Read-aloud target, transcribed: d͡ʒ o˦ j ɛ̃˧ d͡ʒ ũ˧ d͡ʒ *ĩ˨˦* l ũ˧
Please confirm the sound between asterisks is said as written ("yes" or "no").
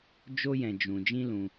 no